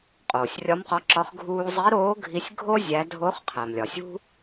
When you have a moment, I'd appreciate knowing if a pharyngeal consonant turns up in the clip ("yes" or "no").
no